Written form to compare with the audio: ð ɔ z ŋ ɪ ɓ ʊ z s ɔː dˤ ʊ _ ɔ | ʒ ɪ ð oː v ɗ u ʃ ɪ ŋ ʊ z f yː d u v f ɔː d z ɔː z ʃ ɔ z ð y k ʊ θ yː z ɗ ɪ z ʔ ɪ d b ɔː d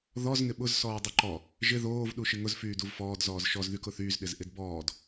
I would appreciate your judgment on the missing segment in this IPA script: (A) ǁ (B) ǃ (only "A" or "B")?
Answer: B